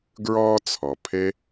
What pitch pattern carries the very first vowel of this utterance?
high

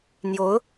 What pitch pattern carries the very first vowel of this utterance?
rising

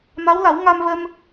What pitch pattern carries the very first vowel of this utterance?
rising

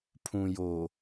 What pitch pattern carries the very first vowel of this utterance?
low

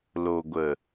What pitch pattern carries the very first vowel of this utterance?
low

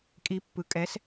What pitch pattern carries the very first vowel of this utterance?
rising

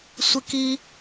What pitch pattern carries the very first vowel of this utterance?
high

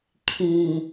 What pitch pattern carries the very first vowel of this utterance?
low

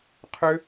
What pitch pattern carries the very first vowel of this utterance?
high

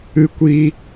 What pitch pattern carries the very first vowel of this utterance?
high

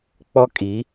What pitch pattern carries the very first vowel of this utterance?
high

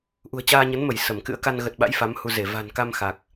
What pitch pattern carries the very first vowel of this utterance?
low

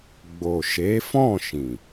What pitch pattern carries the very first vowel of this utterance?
low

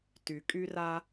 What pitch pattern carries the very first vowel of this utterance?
low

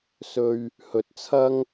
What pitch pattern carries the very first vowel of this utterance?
high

